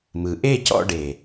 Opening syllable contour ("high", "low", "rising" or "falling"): rising